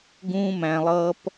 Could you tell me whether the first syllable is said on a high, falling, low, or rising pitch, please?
high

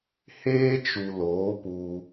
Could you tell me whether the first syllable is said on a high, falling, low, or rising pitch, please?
high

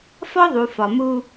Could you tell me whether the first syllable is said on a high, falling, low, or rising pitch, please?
high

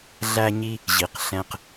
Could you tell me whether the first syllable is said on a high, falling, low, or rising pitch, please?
high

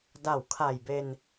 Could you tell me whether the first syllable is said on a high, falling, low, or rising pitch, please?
low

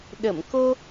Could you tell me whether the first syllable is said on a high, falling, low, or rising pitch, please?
low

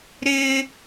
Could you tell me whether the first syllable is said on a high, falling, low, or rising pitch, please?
high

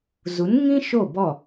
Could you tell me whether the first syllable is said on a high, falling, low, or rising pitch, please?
rising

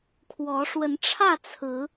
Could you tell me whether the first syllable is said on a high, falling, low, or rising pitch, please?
rising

